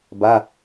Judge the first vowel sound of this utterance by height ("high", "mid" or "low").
low